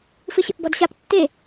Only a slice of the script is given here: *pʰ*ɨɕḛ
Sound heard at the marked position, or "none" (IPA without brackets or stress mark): f